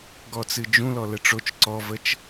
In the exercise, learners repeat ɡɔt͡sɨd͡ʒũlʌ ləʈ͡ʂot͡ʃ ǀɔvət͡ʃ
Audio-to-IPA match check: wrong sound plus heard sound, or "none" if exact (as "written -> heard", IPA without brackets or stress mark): ʌ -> ɔ